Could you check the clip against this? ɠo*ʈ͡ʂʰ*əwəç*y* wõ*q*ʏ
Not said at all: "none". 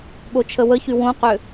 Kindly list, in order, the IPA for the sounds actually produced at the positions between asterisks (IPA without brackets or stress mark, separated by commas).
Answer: t͡ʃʰ, y, q